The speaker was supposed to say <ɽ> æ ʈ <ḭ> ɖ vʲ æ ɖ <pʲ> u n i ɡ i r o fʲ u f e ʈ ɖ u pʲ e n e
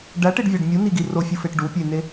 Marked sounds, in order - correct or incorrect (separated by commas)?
incorrect, incorrect, incorrect